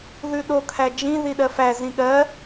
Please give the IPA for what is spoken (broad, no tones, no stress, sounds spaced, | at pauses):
ð ʉ ɗ o kʰ æ d͡ʒ ĩ ð i ɗ ɜ f æ z ĩ ɠ ɜ